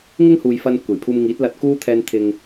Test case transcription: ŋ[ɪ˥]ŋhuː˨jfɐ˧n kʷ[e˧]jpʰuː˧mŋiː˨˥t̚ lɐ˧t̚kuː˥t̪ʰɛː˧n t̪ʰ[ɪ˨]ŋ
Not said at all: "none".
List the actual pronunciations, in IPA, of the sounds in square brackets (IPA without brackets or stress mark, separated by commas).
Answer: ɪ˥, e˨˩, ɪ˨